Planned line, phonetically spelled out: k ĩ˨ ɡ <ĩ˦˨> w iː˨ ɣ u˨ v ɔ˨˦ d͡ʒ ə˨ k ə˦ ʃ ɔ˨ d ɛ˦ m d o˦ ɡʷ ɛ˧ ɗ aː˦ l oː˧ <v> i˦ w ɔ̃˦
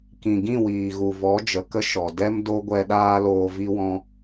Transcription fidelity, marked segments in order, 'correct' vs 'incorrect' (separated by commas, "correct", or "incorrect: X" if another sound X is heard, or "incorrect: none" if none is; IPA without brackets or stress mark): correct, correct